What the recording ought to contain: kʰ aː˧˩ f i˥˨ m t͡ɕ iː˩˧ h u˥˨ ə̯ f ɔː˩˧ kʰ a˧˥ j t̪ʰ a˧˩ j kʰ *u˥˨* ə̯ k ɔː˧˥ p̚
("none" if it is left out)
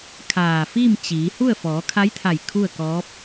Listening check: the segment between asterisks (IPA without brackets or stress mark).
u˥˨